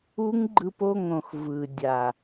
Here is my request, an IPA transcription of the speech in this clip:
u˦ ŋ ɡ͡ǃ ɯ˧ p o˦˨ ŋ õ˨ x v ɯ˨ dʲ a˨

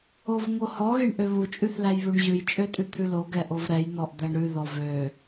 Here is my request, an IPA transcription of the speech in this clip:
o v ŋ o h ɔ ɣ e ɳ ʔ ø β u t͡ʃʼ ʉ θ l æ j β ʉ ɳ ʑ ʉ j t͡ʃʼ ø tʼ ʉ t̪ʰ ʉ l o ɡ ɛ ʔ o v ɾ ɛ j n ɔ ʔ d̪ æ ɳ ɾ ʉ ð ɔ v ø

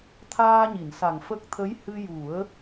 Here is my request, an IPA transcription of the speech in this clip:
t̪ʰ aː˧ ɲ i˨˩˨ n s a˨˩ ŋ f ə˦˥ k̚ t̪ʰ ə˧˥ j h ɨ˧ j u˨˩˦ ə̯

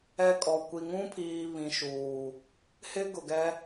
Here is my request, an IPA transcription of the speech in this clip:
ɛ˦ kʼ ɔ˨ kʷ i˨ ŋ ũ˦ pʰ iː˨ β ĩ˨ ʃ uː˨ | h ɪ˦ ɡ ʊ˨ ɡ ɛ˦

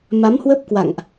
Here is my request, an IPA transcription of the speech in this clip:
m a˨˦ m h w ə˦˥ p̚ k w a̰˧˨ ŋ ʔ

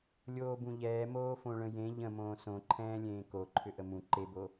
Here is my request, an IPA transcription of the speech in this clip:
lʲ oː b ũ ʎ ɛː m oː f õ ɭ ə̃ j ẽ ʎ ə̃ m õː s õ ǃʰ ɛ̃ː lʲ ẽː k o ǃʰ ʏ ʔ ə m ũ ǃ e b o

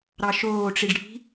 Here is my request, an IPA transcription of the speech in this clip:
ɾ ɑ ʃ oː ʈ͡ʂ i ɖ ɽ i̤

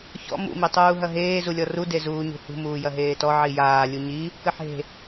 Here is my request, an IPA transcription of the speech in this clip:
ç ɔ̰ m ṵ m i tˤ uː ɦ ɐ ɦ eː z u lʲ ɔ r u d e z uː ɲ ṳ h ṳ m uː j ɐ ɦ eː t ɔ ʕ i j aː lʲ u ɲ i | k ɘ ħ e̤

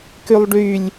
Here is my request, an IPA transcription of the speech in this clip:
k y lˠ ɖ y lʲ

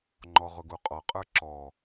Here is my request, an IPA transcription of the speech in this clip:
ŋ͡ǃ ɔ ʁ ʊ ɡ u qʼ ɔ qʼ ə˞ ǁ ɔ

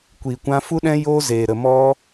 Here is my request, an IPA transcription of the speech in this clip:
kʷ iː˨ kʷ ã˧ f u˦ ɗ ɛ̃˦ j oː˦ z eː˨ ɾ ə˨ m ɔ˧

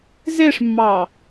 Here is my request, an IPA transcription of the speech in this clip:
z e ʂ mː ɑ

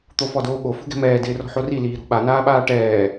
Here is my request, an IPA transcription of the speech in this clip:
t̪ o f ɔ d oː ɠ o f ṳ ɡ ɛ̤ m ɛː d ɪː r ɔ̤ ħ o r i l iː ɾ o̤ ɓ a n aː ɓ aː ʈ ɛː

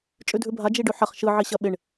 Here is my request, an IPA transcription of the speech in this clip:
t͡ʃʼ ʉ dʱ ʉ bʱ a d͡ʒ i ɖ ʉ ħ ɐ χ ʃ ɯ ʕ i ɕ ɐ ɓ ɪ ɳ

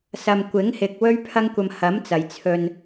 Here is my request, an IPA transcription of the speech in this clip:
s ɐ˧ m kʷ ɪ˨˥ ŋ h ɪ˨ k̚ w ɵ˥ ɥ pʰ ɐ˥ ŋ kʷ ɐ˧ m h ɐ˨˥ m t͡s ɐ˨˩ j t͡sʰ ɵ˨ n

